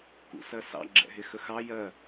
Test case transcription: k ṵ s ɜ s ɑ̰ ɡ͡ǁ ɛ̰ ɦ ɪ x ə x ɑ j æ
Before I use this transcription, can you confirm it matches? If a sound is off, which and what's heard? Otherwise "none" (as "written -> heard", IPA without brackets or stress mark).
æ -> ɜ